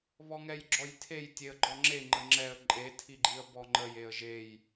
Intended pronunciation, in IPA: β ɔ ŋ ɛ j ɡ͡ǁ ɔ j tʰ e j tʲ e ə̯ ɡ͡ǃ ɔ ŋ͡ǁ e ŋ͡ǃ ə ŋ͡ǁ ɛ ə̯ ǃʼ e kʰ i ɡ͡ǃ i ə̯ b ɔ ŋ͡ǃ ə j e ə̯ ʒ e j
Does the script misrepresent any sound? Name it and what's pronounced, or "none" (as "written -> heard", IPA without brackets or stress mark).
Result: kʰ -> tʰ